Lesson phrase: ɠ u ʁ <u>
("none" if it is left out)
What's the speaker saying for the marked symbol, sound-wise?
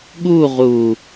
u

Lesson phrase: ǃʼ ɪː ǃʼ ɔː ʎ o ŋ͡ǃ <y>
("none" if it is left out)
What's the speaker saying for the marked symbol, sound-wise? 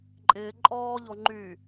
y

